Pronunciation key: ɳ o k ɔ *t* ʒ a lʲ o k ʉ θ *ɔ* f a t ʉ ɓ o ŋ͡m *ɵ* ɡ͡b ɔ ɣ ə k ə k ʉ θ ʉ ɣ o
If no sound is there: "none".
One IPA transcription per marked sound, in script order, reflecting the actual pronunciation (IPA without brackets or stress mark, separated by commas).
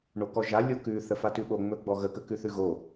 none, ə, ɵ